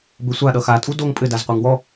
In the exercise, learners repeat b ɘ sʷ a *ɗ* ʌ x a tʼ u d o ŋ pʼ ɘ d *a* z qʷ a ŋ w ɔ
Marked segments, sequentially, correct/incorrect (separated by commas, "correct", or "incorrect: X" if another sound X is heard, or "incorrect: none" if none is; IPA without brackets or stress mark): correct, correct